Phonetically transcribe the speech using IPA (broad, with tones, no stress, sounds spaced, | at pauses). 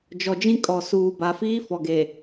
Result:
d͡ʒ ɔ˨ d͡ʒ ĩ˦ kʼ ɔ˨ s uː˨ b a˨ f iː˦ f ɔ˨ ɡ e˨